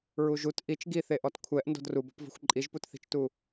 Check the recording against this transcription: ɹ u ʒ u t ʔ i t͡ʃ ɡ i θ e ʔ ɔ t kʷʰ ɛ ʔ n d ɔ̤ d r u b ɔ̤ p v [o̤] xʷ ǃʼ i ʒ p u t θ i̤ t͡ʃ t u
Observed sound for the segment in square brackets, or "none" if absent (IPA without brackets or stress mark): ɔ̤